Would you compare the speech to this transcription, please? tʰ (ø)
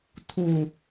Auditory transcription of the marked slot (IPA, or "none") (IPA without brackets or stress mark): u